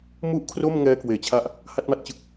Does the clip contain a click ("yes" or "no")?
no